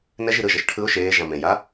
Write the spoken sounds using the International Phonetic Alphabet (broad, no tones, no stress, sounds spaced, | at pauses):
n ɛ ʒ i ɾ ɯ ʒ ɤ ʃ ʈʰ ɯ ʊ̯ ʃ eː ʒ ã m ẽ j a